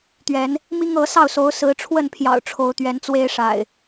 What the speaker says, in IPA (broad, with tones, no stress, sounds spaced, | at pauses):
t̪ ɥ ɛ˨˦ n | m i˦ ŋ ɤ˨˦ s ɑ˥˨ ʊ̯ s o˨˦ ʊ̯ s ɹ̩˨˦ ʈ͡ʂʰ w ə˥˨ n pʰ j ɑ̰˨˩ ʊ̯ ʈ͡ʂʰ o˨˦ ʊ̯ t̪ ɥ ɛ˨˦ n t͡s w e˦ ɪ̯ ʂ a̰˨˩ ɪ̯